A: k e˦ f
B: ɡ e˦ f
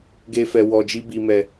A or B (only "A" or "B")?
B